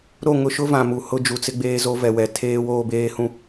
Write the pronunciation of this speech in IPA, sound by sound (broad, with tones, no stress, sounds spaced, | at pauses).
ɾ o˦˨ ŋ ʊ˦ ʃ ʊ˦ v ã˨ m u˨ h ʊ˦ d͡ʒ u˨ t͡s ɪ˦ ɡ͡b eː˦ z o˦ v ɛ˨ w ɛ˨ tʰ eː˦ w oː˦ b eː˦ h ũ˦